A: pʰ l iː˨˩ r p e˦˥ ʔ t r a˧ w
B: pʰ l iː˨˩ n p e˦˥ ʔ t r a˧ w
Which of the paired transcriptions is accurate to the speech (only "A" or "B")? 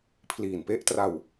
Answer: B